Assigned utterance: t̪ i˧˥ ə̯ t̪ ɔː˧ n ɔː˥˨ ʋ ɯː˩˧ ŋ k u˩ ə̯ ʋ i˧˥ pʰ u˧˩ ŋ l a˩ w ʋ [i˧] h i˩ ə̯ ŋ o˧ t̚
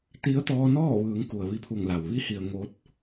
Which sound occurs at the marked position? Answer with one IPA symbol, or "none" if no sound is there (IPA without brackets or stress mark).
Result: i˧